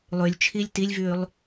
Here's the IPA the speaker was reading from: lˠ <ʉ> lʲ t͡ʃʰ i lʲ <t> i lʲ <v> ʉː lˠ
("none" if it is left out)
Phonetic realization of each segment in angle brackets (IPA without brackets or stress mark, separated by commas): ʉ, t, v